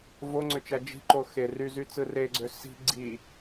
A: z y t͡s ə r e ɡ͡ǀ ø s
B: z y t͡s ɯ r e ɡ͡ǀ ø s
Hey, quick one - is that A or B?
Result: B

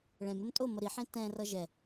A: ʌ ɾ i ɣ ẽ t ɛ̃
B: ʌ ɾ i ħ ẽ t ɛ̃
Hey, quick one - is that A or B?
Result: B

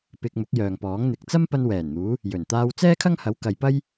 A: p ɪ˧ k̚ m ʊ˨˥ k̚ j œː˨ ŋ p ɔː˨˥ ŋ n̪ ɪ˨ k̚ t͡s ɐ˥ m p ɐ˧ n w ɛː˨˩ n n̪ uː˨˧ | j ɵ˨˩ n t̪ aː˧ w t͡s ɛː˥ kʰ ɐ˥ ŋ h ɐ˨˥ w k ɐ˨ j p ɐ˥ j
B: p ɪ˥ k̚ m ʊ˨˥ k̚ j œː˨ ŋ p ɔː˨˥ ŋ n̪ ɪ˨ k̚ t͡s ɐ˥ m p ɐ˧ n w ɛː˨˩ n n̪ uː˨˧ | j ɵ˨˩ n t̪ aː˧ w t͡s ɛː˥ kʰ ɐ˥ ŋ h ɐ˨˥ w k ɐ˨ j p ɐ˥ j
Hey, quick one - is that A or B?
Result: A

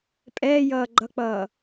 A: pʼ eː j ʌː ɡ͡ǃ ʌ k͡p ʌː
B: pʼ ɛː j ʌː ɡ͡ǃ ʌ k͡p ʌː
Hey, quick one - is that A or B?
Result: B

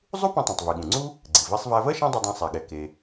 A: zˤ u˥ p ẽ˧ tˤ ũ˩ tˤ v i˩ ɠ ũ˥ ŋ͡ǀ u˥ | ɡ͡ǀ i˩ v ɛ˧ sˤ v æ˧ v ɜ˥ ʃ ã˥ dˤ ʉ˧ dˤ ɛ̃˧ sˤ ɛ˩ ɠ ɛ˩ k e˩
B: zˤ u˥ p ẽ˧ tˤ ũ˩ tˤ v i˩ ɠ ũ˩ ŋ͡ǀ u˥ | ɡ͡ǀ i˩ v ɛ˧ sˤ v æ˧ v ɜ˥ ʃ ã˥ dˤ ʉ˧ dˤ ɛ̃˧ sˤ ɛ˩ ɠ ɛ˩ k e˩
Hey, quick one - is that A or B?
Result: B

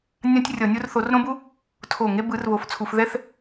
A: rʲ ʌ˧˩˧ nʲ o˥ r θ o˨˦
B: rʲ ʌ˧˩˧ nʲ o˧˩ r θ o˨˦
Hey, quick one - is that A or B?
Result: A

